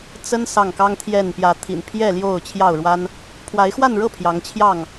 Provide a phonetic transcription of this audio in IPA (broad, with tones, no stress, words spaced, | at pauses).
t͡sə˦n sɑ˥˨ŋkɑ˦ŋt̪ʰjɛ˥˨n pjä˨˦t̪ʰḭ˨˩npʰjɛ˥˨ ljo˥˨ʊ̯ t͡ɕʰjɑ˥˨ʊ̯ɻwa˦n | pʰwa˨˦ɪ̯xwa˥˨nɻɤ˥˨ pʰjɑ˨˦ŋt͡ɕʰjɑ˥˨ŋ